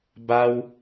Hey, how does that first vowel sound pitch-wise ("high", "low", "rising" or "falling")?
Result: high